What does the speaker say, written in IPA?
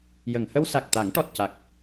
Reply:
j ə˨˩˨ ŋ h ə˧ w s a˨˩ k̚ t̪ a˨˩˦ ŋ ʈ ɔ˨˩ t̚ c a˨˩ k̚

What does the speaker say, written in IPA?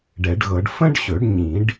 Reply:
ɖ ɛ˨˩˦ ɖ ɣ ɤ˨˩˦ ɖ f ə̃˥ ɖ ɕ ɵ˨˩˦ ɖ ɲ ĩ˨˩˦ ɖ

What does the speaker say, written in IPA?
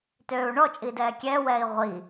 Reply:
t øː u̯ ɳ ɔ t͡ʃʼ iː d ɛː kʲ ɛ w ɛː i̯ ʁʷ i

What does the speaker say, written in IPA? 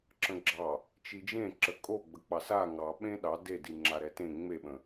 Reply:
ǁ ə̃ ɡ͡ǁ ɑ | t͡ʃ i d͡ʒ ẽ ǁ ə kʼ o ɡ͡b ə k͡p ɑ s a ŋ ɑ ɓ ẽ ɗ ɑ d e d i ŋ͡ǁ a ɾ ɛ t ẽ ŋ͡m e ɓ ə̃

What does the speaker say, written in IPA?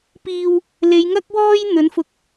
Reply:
p iː˨ w | l e˨˧ j ŋ ɐ˥ k̚ w ɔː˥ j n̪ ɵ˨˥ n f ʊ˧ k̚

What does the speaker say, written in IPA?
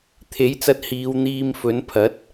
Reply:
t̪ʰ e˨˥ j t͡s ɐ˧ t̚ h iː˨˧ w n̪ iː˧ m f ɵ˨˥ n pʰ ɐ˨˥ t̚

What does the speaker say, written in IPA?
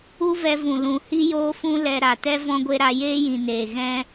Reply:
u˦ v ɛ˧ v ũ˨ l ũ˨ h i˦ j oː˦ f ũ˦ l ɛ˧ ɾ a˨ t ɛ˦ v ɔ̃˧ ɡʷ e˧ ɾ a˧ j eː˦ j ĩ˨ n eː˨ ɣ ɛ̃˦

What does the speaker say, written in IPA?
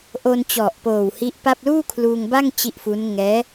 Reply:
ʔ o˧ n t͡ɕ ɔ˨˩ ʔ p oː˨˩ w h i˦˥ ʔ p a˥˩ p̚ l uː˥˩ kʰ l uː˧ ŋ b a˥˩ ŋ t͡ɕ i˦˥ ʔ f u˦˥ n ŋ ɛː˦˥

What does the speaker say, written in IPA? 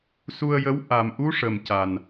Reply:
s u˧ ə̯ j ə˧˥ w ʔ a˨˩ m ʔ u˧˥ ʂ ə˨˩ m c a˨˩ n

